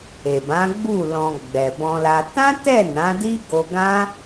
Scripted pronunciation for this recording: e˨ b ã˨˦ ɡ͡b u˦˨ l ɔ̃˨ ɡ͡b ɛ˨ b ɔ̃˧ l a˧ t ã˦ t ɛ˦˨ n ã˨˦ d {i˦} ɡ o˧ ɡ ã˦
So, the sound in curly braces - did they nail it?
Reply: yes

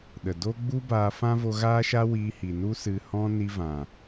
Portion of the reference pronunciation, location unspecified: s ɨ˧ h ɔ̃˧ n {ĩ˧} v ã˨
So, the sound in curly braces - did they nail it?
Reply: no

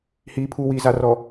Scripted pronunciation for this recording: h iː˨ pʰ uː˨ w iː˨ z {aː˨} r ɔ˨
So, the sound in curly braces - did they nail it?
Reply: no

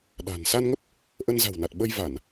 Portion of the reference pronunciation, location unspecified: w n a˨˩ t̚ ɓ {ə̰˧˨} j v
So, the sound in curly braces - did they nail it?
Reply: no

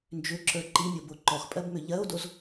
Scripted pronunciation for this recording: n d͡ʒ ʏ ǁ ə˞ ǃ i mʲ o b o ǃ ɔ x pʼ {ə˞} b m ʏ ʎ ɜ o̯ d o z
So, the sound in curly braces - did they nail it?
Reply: no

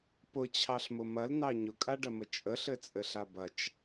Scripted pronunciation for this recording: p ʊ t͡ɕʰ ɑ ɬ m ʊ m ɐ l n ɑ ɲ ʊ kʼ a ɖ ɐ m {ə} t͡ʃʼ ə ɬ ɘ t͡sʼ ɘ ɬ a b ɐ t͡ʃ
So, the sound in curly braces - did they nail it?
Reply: yes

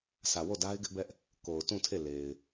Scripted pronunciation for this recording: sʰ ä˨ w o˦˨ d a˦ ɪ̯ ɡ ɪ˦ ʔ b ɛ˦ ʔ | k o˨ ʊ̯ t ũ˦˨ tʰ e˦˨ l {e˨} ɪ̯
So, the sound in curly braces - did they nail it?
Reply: yes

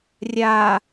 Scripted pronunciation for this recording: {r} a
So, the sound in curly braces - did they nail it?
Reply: no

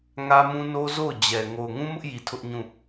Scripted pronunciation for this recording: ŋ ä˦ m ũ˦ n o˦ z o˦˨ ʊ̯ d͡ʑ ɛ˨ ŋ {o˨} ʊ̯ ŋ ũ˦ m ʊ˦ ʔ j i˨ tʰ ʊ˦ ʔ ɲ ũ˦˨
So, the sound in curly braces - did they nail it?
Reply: yes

